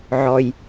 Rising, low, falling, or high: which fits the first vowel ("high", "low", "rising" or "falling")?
low